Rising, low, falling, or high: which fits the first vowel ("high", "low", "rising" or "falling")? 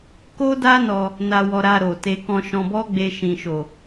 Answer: high